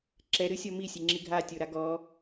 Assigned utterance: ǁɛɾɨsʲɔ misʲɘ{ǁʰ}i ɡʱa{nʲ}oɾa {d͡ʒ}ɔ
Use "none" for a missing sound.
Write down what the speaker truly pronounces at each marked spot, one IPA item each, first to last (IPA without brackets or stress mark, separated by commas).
ŋ͡ǁ, tʲ, ɡ